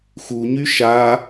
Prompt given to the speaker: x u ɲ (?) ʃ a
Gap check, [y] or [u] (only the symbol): y